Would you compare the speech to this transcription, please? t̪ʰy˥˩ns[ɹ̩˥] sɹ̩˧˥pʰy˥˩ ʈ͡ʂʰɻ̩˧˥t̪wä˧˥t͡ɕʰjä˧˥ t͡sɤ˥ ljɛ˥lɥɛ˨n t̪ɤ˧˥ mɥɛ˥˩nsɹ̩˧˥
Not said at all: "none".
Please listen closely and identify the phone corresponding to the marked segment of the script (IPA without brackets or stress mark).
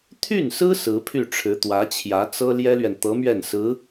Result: ɹ̩˥